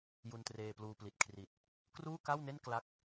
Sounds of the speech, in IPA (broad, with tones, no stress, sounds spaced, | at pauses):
j u˧ n t r eː˧ p l uː˧ p l i˨˩ t̚ kʰ r i˨˩ t̚ | k r uː˥˩ k a˥˩ w n e˥˩ n k l a˥˩ k̚